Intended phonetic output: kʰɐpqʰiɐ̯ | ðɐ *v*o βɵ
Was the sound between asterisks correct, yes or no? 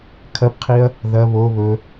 no